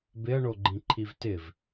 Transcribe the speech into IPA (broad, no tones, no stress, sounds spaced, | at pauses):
b ɪ ɐ̯ ɳ o ɡ͡ǃ ĩ ǃʰ i v t ɪ v